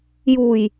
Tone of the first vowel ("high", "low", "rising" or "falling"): low